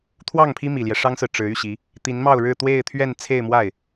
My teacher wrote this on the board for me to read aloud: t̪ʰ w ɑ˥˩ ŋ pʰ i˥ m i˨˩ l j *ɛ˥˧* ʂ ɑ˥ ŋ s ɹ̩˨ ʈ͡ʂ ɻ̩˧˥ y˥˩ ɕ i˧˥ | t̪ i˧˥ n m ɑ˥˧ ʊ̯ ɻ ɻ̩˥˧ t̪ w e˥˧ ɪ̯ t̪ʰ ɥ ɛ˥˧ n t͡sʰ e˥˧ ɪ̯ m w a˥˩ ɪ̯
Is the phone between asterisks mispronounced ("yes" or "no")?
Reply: yes